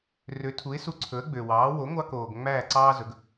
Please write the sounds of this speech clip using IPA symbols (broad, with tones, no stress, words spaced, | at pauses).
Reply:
rø˩˥tʰu˩˥ɪ̯su˧ ǀʰɵ˩˥ə̯ɡ͡bø˩wɑː˩˥ wo˩˥ŋʷɑ˧koː˩ɡ ŋ͡mæː˥˩ǀɑː˥zɵ˩˥ɡ